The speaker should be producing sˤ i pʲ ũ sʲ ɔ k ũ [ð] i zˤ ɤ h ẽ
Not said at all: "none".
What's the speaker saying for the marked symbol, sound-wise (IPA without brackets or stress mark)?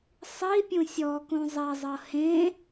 zˤ